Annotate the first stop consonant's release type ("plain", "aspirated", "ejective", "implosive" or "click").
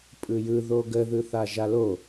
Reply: ejective